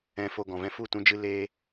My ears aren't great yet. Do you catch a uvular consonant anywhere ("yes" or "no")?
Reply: no